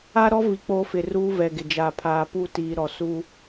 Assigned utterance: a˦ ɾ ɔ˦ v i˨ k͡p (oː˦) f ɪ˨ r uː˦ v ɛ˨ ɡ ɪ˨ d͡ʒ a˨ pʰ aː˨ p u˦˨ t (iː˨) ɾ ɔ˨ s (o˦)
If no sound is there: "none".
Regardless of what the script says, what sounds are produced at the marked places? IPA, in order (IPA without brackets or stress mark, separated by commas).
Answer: oː˦, iː˨, u˦